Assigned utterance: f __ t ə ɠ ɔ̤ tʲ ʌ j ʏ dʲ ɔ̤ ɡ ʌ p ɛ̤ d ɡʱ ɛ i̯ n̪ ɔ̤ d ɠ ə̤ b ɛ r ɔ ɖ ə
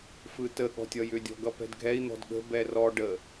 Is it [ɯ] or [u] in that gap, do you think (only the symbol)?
ɯ